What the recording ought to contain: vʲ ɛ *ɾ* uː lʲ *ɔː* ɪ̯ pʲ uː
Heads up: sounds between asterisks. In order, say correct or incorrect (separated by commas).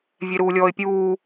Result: correct, correct